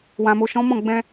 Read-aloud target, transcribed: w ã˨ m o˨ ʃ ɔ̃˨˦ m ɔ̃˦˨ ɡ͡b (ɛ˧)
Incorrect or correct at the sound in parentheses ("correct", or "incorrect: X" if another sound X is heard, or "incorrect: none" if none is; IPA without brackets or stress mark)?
incorrect: ɛ̃˧